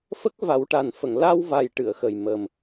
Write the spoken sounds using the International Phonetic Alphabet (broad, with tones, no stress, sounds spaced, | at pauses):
f ə˦˥ k̚ v a˨˩˦ w ʈ a˨˩ n f ə˨˩˨ ŋ l a˧ w v a˨˩ j ʈ ɨ˨˩˨ ə̯ x ə˨˩ j m ə˨˩ m